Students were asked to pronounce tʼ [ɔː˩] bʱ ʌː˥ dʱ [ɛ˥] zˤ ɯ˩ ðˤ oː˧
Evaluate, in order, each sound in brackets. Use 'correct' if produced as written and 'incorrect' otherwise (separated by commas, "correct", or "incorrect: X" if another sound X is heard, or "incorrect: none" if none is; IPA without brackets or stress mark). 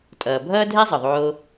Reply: incorrect: ʌː˩, correct